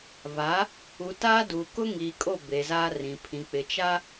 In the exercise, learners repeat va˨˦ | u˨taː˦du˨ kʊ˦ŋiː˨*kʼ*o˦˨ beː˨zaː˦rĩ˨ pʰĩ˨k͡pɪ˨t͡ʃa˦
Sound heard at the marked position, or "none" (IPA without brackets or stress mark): kʼ